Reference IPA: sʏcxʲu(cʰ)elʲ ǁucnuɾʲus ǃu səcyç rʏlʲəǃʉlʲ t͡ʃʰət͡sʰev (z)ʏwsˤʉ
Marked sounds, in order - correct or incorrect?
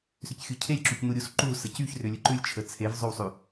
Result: correct, incorrect: zˤ

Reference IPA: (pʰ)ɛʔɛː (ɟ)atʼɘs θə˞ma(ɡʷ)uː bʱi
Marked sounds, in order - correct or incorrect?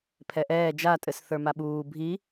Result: correct, incorrect: d͡ʒ, incorrect: ɓ

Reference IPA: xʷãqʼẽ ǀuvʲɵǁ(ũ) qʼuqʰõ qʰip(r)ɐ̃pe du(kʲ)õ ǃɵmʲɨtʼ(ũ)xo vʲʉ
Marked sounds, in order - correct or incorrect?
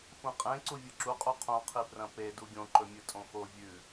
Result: incorrect: u, correct, incorrect: ɡʲ, incorrect: õ

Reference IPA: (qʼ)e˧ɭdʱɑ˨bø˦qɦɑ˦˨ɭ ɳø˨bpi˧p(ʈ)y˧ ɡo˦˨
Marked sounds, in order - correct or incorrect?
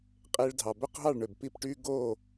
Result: correct, correct

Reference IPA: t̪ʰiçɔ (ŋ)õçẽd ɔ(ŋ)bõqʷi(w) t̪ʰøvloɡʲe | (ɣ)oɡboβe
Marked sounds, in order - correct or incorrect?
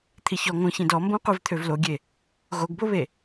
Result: correct, incorrect: m, incorrect: v, correct

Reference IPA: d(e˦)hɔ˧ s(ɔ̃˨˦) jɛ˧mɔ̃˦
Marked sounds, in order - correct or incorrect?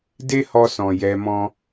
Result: correct, incorrect: ɔ̃˨

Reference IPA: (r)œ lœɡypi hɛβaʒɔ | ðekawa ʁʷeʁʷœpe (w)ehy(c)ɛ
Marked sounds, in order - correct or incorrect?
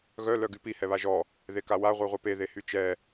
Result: incorrect: ɣ, incorrect: ð, incorrect: t͡ʃ

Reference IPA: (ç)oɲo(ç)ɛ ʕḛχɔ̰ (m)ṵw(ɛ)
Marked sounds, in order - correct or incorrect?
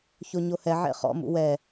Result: correct, incorrect: h, correct, correct

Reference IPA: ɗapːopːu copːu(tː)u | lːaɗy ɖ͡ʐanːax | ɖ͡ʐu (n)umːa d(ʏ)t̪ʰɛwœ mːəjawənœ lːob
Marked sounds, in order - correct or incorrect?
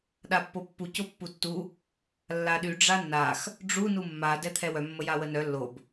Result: correct, correct, incorrect: ɛ

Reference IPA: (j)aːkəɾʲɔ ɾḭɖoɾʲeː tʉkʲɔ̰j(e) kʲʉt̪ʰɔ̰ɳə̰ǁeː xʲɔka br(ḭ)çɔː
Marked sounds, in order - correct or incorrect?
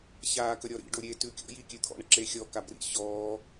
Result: incorrect: ç, incorrect: i, correct

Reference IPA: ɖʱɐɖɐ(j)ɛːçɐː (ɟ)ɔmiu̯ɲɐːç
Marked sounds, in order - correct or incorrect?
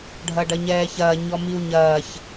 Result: incorrect: ɲ, incorrect: ɲ

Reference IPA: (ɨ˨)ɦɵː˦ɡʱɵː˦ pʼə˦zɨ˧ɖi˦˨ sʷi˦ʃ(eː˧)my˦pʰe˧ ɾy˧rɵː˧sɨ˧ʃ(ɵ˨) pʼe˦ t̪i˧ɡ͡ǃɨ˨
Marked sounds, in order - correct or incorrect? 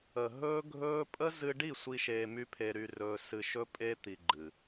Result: incorrect: ə˨, correct, incorrect: ɵ˦

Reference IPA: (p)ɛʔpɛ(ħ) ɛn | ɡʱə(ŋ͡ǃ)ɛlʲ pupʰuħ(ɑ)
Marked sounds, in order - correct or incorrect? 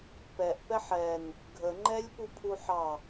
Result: correct, correct, correct, correct

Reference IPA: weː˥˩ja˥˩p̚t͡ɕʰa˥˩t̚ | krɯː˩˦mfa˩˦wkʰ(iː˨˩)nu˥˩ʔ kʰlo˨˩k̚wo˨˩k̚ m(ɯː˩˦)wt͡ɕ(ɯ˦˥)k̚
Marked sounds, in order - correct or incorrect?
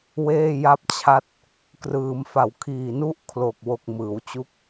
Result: correct, correct, incorrect: u˦˥

